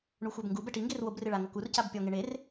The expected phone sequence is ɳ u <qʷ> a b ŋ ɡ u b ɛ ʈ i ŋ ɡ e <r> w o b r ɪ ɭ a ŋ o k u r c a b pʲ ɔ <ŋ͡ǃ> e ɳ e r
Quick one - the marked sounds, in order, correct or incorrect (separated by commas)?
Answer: incorrect, correct, incorrect